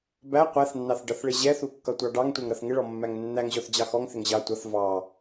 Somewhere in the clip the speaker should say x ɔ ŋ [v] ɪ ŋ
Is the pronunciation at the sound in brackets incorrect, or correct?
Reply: incorrect